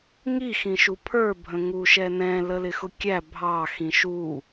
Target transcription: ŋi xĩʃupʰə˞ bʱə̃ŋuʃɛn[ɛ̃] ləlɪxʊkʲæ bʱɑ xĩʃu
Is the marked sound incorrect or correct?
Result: correct